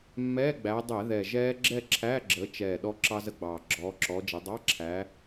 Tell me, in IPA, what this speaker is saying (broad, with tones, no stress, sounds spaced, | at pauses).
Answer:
mː ɛː˧˥˧ ɡ͡b æ˨˦ dˤ ɛ˧˩˧ ð ɛ˨˩ ʒ ɛː˦˥ ɡ͡ǁ ɛ˥˧ ǁʰ æː˧˥˧ ɡ͡ǁ əː˨˦ t͡ʃ ɛː˨˩ ɗ ɔ˦˥ ǁ ɑ˦˥ z ə˦˥ ɡ͡b ɑː˨˩ ɡ͡ǁ ɔː˨˦ ǁ ɔː˨˦ d͡ʒ ʌ˨˦ dˤ ɑ˧˥˧ ǁʰ æː˨˦